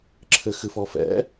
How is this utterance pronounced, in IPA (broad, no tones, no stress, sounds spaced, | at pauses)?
ǁʰ ɘ x ɨ f ɔ f ɛ̰